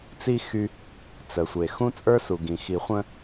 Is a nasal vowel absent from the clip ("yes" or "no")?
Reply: no